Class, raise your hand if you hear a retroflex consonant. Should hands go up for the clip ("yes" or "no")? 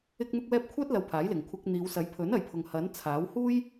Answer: no